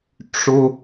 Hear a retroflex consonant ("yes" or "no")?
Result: yes